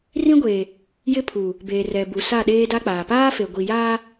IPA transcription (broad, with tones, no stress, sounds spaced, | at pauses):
r ĩ˦ ɡʷ e˨ | j ɪ˦ pʰ u˨ | b eː˨ r ɛ˨ b u˨ s a˦˨ ɗ eː˦ d a˦ k͡p aː˨ p aː˦ f e˨ ɡʷ i˨ j aː˦